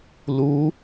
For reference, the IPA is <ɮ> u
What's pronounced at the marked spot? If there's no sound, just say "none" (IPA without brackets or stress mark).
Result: l